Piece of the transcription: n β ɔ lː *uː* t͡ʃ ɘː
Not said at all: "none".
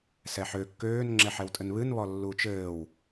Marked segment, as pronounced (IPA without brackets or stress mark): uː